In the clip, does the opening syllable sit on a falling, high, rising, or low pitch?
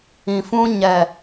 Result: low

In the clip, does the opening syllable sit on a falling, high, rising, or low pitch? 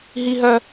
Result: high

